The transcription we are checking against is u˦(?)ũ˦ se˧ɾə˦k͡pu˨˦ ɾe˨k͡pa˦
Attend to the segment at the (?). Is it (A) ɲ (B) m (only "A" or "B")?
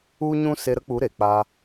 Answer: A